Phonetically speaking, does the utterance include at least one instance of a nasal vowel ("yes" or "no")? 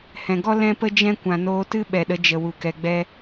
yes